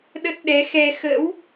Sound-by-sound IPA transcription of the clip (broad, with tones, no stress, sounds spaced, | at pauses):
ɗ ə˦˥ t̚ ɗ ɛ˨˦ x ɛ˧ x ə̰˧˥ w